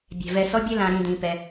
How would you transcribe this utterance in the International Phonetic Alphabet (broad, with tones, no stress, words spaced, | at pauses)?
bʲɛ̤˩vɛ˨ sɔ˦bʲɘ˦ lã˨ɾĩ˨ dĩ˨pɛ˨